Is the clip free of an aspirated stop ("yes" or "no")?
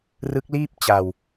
yes